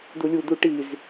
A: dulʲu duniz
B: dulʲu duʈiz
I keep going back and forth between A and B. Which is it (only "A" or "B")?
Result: B